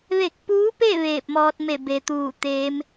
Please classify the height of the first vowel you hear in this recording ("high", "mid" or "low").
mid